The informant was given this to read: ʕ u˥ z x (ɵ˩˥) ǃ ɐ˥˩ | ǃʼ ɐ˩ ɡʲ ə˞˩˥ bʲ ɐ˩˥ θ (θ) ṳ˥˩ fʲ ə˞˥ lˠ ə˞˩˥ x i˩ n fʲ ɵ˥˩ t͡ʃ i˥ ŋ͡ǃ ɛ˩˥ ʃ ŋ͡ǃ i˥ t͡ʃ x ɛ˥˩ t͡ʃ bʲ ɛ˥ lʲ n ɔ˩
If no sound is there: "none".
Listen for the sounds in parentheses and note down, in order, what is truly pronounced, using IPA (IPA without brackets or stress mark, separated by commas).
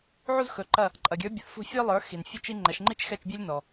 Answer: ɵ˩˥, f